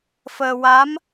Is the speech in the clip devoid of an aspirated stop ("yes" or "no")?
yes